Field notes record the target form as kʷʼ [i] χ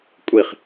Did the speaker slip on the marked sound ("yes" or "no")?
no